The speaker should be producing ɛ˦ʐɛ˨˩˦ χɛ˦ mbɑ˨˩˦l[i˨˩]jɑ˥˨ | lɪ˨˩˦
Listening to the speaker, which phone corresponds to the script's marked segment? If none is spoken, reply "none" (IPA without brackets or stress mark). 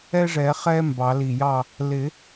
i˨˩